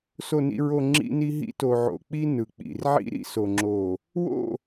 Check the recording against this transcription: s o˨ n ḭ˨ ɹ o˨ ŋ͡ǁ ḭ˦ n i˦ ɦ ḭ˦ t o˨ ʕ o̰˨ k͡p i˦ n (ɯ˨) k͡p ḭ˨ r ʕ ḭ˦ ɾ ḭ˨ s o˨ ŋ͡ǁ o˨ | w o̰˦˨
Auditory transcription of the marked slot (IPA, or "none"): ɯ˨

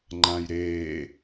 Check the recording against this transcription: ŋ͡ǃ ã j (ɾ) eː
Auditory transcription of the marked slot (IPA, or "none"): ɾ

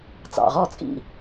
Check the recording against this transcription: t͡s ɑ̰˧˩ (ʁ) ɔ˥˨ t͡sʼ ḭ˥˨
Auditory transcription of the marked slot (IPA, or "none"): ʁ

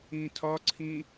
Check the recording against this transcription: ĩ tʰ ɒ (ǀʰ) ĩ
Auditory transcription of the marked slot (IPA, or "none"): ǀʰ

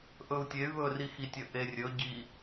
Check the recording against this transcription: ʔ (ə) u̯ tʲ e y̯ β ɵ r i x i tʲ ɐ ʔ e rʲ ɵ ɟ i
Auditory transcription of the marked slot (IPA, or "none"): ɵ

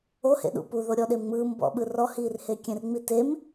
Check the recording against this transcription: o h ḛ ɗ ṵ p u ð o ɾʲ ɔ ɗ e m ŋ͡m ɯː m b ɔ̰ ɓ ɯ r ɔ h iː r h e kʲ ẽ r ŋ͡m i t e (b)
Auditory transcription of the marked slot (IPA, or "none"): m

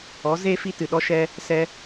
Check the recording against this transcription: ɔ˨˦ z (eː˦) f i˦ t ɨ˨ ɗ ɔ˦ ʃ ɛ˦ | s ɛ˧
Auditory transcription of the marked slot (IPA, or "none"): eː˦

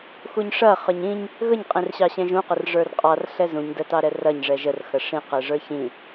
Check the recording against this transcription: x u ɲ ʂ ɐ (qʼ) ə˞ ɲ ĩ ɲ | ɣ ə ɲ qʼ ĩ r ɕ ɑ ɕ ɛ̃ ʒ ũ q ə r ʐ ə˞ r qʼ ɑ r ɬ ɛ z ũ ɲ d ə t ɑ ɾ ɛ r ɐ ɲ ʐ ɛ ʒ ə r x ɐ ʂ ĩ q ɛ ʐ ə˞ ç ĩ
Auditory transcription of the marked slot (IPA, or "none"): χ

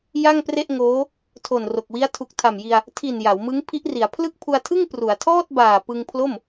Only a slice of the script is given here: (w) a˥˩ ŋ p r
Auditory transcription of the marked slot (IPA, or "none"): j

